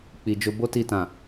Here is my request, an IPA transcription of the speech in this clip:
k͡p i˨ d͡ʒ o˧ b o˦ t i˧ t ã˨

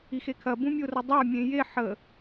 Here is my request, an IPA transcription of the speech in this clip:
i x e kʰ ɐ b ũ mʲ o r ə dˤ a mʲ ẽ j e ħ ə

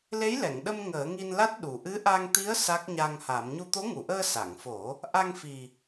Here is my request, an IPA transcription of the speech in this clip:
l e˧˥ j l ɛ˨˩˨ ŋ ɗ ə˧ m ŋ əː˨˩˦ ŋ i˧ n l a˦˥ t̚ ɗ u˨˩ ʔ ɨ˧˥ ʔ a˧ ŋ t̪ i˧˥ ə̯ s a˦˥ k̚ ɲ a˧ ŋ h a˨˩˦ m ɲ u˧ t̪ o˧˥ ŋ u˨˩˨ ʔ əː˧ s a˨˩˨ ŋ f o˨˩˦ | ʔ a˧ ŋ f i˨˩

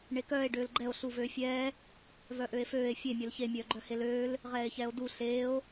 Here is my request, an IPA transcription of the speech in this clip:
ɳ e k œː e̯ ɖ øː l ɡ͡ǃ ɛ o̯ ɬ u v øː fʲ ɛː | v œ ʔ ø e̯ f øː e̯ fʲ e mʲ œ l ç e mʲ œː ɡ͡ǃ œ h e l øː l | ʁ ɛː e̯ ç ɛː o̯ d u ɬ eː o̯

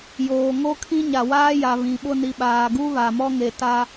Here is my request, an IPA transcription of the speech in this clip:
j oː˨ ŋ o˦ kʰ ĩ˦ ɲ a˨ w aː˦ j a˨ β ĩ˨ ɓ ʊ˦˨ n i˨ ɓ aː˨ ɡ u˦ β a˨ m ɔ˦ ŋ e˨ t a˦

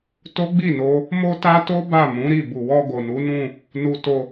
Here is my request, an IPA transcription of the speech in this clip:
t o˦ ɡ͡b i˦˨ n o˧ | m o˦ t a˦ t o˦ b a˦˨ m ũ˨˦ ɾ i˦˨ b u˨ w ɔ˧ ɡ o˨ n u˨˦ n ũ˦˨ | n u˧ t o˧

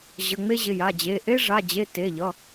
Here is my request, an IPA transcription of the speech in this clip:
ʑ ə˩˧˩ ŋ͡m e˦ ʑ ɪ˩˧˩ j a˩˧˩ d͡ʑ e˩˧˩ ʔ e˦ ʐ a˩˧˩ d͡ʑ e˩˧˩ t e˩˧˩ ʎ ʌ˩˧˩

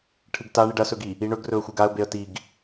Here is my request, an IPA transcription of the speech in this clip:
ʈʰ ɨ ɡ t a ɳ i ɖ ɐ s ɵ ɡ i | i ɳ ɵ ɡ r ɵ ə̯ xʷ ɨ ɡ a ə̯ b e ə̯ t i ɡ

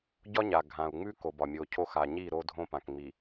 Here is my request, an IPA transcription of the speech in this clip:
ɟ ɒ˦ ɲ a˨ ɡʱ ã˨ u̯ ŋ͡m ʉ˦ k o˨ b ɒ˨ mʲ o˨ cʰ o˦˨ x a˨ ɲ i˦˨ ɾ o˦ dʱ õ˦ p ã˨ k ŋ͡m i˨

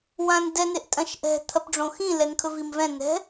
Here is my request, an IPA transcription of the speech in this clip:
w ã n d ɛ n e ʔ tʼ ɐ̃ ʃ ʔ ɛ̤ t̪ʰ ɐ p ɖ͡ʐ õ x ĩ l ɛ n kʰ ɵ v i m v ɛ̃ n ɛ̤

